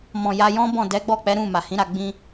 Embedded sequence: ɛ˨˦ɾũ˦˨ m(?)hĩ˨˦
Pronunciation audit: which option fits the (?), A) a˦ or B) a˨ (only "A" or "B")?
B